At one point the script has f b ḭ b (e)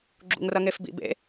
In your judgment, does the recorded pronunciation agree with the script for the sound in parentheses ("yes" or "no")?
no